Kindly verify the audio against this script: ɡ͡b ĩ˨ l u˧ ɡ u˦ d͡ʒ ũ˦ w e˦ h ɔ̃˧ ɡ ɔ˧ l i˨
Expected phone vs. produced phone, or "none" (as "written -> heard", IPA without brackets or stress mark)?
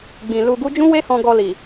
none